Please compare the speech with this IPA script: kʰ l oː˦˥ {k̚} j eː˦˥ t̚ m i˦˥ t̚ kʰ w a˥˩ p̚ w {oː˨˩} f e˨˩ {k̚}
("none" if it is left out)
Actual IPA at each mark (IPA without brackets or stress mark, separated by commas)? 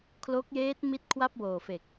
k̚, oː˨˩, k̚